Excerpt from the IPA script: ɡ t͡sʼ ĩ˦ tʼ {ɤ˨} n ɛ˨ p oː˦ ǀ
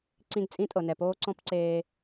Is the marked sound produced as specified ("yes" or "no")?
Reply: yes